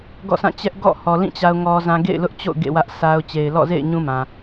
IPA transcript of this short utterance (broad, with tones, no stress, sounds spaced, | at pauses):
ɡ ɔ̰˦˨ sʰ ã˦˨ t͡ɕ ɛ˦ ʔ ɡ ɔ̰˦˨ h ɔ˨ l ĩ˦˨ t͡ɕ a˦ ʊ̯ ŋ ɔ˦ z ã˦ ɡ ḛ˦˨ ɪ̯ l ʊ˦ ʔ t͡ɕ o̰˦˨ ʊ̯ ɡ ḛ˦˨ w ä˦ ʔ s a˦ ʊ̯ t͡ɕ e˨ ɪ̯ l ɔ̰˦˨ z ḛ˦˨ ɪ̯ ɲ ũ˦ m ã˨